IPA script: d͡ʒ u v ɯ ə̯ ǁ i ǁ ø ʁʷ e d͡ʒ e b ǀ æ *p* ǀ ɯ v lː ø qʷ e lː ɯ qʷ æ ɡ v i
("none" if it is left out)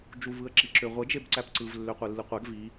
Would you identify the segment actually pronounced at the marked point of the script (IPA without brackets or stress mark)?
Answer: p